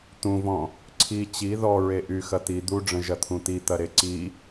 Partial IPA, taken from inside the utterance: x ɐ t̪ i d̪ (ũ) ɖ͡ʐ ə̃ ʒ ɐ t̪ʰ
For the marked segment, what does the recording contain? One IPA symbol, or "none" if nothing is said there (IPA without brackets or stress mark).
u